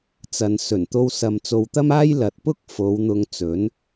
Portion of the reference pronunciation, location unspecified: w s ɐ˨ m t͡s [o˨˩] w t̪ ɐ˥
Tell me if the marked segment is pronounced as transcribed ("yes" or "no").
no